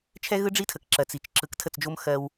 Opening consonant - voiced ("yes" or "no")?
no